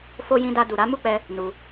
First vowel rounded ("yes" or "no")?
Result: yes